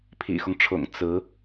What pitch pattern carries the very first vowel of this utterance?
low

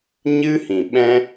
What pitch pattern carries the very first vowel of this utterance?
high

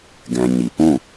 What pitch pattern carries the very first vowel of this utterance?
low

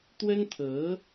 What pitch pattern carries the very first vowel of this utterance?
high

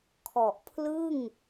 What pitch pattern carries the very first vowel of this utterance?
low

